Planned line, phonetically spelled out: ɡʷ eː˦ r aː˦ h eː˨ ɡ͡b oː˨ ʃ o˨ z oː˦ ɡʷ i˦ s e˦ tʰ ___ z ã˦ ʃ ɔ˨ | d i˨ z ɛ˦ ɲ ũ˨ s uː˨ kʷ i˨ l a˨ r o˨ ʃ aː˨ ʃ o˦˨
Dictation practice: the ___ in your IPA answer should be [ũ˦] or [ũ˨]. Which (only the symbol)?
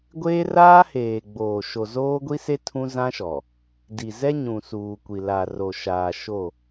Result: ũ˦